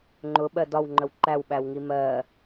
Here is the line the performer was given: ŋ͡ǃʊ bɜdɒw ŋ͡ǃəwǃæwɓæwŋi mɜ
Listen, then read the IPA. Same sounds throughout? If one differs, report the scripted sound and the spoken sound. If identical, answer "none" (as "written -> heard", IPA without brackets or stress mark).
b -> ɓ